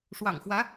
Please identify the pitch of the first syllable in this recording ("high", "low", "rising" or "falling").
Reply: low